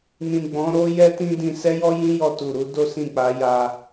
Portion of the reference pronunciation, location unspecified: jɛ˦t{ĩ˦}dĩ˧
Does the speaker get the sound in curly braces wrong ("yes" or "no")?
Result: no